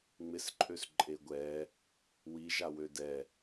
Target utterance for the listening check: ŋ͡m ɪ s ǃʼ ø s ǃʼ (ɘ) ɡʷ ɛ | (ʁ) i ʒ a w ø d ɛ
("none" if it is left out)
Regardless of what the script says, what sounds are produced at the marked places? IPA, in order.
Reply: e, w

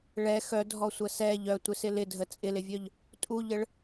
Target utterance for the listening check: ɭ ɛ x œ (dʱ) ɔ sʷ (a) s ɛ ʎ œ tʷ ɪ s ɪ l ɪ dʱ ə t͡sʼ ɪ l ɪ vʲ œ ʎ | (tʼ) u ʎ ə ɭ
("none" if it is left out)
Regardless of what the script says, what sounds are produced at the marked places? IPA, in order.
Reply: dʱ, ə, tʼ

